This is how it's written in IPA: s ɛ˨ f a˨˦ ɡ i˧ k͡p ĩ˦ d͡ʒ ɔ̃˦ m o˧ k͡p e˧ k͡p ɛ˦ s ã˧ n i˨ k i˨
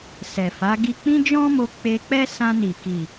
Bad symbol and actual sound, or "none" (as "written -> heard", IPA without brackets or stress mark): none